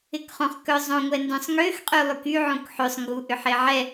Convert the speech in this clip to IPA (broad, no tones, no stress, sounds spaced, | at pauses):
ɪ k χ õ χ k œ zˤ õ ŋʷ ɛ n d œ̃ sˤ ŋ ø x qʼ y lˠ y k y ʕ õ k ħ ø sˤ ŋ ɡ u ʔ ʏ ħ e ʕ ɛ